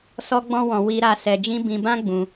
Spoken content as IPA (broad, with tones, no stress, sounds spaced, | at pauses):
s ɔ˦ ɡ͡b ɔ̃˦ w ɔ̃˧ w i˧ ɾ a˧ s ɛ˧ d͡ʒ ĩ˦ b ĩ˧ b ã˦ ɡ͡b ũ˧